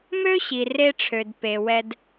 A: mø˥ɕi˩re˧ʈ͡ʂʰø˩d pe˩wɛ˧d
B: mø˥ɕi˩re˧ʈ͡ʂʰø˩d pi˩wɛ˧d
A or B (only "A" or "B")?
A